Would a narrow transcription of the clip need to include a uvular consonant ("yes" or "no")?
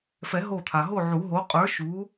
yes